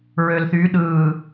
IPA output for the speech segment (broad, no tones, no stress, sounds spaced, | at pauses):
ɹ ø l θ y ɗ ɯː